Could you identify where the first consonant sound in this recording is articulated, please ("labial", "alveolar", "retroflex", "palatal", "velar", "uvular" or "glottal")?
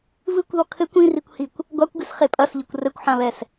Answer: labial